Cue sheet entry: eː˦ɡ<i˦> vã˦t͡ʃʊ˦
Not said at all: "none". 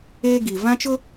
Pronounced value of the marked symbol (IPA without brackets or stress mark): i˨